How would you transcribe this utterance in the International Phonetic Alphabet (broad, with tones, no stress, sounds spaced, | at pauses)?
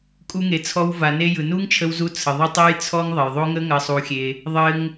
kʼ u˧ ŋ e˨ t͡sʰ ɔ˧ w v a˨ n e˧ j ɯ˨ n u˦ ŋ t͡ʃʰ ə˧ w z u˧ t͡sʰ ə˨ ðˤ ɘ˦ tˤ e˦ j t͡sʰ ɔ˦ ŋ ðˤ ɐ˨ j ðˤ o˦ ŋ ə˦ ŋ ɐ˧ sˤ u˧ xʲ e˧ | ðˤ ɘ˧ ŋ